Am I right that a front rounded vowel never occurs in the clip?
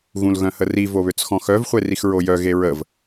no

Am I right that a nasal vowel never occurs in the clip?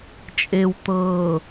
yes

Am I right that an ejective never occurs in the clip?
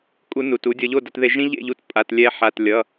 no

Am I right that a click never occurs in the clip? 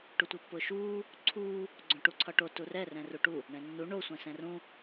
no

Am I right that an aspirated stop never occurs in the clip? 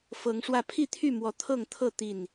no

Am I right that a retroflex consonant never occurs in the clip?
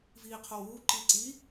yes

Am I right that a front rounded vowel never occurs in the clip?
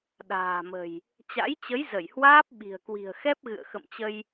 yes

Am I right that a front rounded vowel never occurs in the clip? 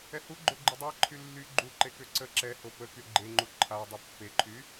no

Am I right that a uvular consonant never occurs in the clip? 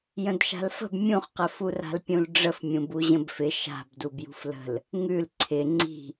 no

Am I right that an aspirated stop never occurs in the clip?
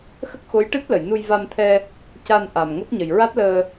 no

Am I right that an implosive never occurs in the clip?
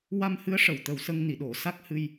no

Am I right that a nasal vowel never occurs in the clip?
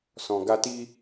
no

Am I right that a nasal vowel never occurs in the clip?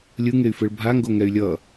yes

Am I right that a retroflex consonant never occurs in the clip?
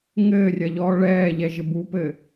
no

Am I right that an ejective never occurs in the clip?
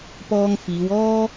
yes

